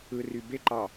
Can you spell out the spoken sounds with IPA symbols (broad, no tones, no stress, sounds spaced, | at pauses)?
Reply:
ɯ r y b e ǃ ɑ